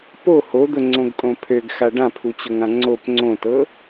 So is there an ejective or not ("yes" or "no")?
yes